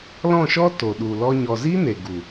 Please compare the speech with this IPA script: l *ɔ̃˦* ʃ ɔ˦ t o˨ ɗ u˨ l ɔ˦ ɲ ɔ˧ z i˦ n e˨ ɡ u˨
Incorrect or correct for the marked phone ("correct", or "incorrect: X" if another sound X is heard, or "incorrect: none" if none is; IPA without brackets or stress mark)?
incorrect: ɔ̃˦˨